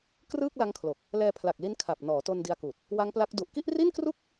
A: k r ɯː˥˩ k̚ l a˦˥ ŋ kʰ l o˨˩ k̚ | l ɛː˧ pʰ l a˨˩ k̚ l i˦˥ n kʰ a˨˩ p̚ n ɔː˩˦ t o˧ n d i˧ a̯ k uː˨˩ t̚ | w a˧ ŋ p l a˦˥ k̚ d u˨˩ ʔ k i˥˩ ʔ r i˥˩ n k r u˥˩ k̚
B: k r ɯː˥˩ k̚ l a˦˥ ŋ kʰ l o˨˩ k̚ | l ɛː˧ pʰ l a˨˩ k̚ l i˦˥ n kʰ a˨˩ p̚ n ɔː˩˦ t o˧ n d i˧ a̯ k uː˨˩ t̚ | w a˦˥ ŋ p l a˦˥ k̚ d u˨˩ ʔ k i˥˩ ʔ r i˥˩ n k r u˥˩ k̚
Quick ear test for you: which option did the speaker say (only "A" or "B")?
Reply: B